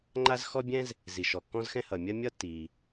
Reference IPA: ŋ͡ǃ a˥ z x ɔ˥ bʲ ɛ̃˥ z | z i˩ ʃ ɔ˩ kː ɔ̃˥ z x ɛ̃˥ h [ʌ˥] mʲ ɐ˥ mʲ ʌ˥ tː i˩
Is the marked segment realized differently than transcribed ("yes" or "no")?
yes